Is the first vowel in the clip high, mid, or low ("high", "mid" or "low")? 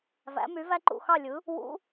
low